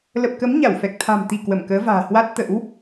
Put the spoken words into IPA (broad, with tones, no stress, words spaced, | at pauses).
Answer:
lə˨˩p̚kə˨˦m ɲa˧˩wfɛ˨˩k̚ t̪ʰa̤˨˩mt̪i˧˩ kwə˧˩mkəː˨˦va̤ː˨˩ hwa˦˥t̚t̪ə̰˧˥w